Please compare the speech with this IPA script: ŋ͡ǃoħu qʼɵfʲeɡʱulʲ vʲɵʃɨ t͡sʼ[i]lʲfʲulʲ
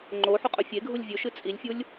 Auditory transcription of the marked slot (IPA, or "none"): i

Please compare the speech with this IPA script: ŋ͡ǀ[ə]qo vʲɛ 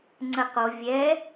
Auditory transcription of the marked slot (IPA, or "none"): ə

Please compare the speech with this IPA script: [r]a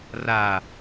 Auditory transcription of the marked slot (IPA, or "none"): r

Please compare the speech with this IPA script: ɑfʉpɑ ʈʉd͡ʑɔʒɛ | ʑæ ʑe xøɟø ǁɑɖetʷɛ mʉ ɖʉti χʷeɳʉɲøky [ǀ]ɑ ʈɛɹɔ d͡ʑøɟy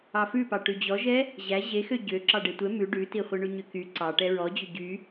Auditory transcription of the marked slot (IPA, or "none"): ǀ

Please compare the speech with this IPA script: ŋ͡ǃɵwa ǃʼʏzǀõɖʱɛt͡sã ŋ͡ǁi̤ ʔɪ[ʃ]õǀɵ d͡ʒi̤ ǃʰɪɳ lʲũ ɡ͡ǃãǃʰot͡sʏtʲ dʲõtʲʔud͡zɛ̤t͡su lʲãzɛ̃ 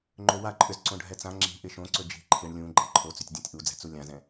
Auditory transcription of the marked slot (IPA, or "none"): ʃ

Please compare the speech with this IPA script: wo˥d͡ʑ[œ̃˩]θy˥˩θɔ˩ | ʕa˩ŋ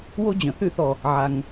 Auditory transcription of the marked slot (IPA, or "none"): œ̃˩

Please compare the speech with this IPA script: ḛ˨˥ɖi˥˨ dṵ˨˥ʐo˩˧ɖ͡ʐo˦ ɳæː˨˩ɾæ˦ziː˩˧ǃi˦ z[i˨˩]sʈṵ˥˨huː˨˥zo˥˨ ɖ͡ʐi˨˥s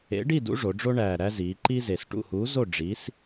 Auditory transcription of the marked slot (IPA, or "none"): e˨˩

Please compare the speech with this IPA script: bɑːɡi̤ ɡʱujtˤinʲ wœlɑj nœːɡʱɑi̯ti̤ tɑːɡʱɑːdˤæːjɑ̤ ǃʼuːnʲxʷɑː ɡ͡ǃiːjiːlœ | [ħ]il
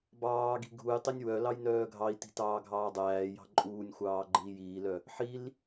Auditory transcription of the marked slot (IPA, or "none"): ħ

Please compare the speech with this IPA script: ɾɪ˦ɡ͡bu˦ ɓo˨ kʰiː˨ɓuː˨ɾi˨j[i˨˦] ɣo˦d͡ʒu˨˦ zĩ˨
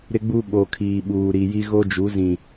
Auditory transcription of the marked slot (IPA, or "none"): i˦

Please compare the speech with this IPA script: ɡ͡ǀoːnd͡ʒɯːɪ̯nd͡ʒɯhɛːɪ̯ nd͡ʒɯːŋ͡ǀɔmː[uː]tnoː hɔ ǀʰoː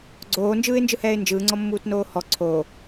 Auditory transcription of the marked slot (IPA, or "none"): uː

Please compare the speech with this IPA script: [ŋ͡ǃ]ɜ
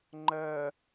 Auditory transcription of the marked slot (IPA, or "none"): ŋ͡ǃ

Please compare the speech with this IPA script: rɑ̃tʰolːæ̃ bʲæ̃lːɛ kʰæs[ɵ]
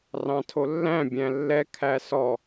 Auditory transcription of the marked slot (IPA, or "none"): ɔ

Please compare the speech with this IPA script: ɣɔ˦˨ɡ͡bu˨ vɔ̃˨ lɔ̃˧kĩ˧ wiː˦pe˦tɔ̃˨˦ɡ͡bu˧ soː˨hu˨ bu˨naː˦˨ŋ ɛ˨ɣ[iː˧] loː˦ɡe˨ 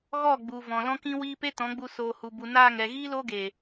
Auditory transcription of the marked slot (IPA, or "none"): iː˦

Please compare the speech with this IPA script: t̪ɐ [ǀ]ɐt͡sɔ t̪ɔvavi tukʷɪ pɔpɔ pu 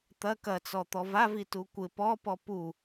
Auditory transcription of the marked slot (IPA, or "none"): k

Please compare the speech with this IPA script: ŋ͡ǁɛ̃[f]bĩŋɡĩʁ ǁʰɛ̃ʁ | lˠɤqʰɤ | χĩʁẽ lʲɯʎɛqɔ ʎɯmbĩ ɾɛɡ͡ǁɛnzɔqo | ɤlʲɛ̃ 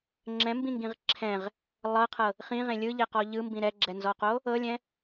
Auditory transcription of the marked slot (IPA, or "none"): m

